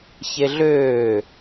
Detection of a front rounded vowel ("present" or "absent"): present